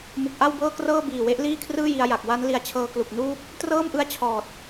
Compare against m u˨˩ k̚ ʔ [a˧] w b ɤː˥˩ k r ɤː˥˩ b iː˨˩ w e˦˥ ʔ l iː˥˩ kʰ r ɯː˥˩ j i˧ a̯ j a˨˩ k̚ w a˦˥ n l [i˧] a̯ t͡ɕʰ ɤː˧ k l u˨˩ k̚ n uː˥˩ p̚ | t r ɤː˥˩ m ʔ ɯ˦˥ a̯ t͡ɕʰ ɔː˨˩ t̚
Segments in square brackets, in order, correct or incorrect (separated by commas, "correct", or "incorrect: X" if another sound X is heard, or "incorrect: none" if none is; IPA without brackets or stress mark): incorrect: a˥˩, correct